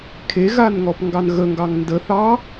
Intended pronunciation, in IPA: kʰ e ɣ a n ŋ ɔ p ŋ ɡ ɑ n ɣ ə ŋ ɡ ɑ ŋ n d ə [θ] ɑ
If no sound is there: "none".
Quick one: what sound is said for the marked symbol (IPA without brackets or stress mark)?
θ